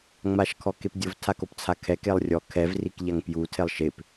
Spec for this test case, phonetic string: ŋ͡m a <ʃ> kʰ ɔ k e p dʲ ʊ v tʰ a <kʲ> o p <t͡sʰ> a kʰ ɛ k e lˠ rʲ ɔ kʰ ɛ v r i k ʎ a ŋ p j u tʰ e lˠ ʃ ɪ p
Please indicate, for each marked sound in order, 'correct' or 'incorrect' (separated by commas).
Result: correct, incorrect, correct